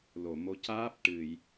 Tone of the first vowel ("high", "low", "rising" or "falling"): low